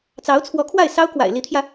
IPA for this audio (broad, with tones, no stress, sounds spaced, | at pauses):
t͡s ɑ˧˥ ʊ̯ t͡sʰ w ɔ˧˥ kʰ w a˥˩ ɪ̯ s ɑ˥ ʊ̯ k w a̰˨˩ ɪ̯ l i˧˥ t̪ʰ j ä˧